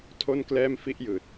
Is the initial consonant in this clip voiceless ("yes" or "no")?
yes